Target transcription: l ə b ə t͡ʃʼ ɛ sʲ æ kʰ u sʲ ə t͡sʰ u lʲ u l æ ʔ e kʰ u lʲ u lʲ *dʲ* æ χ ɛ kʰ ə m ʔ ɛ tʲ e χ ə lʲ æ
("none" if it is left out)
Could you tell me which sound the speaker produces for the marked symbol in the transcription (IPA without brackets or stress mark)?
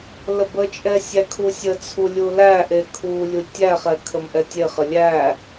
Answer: tʲ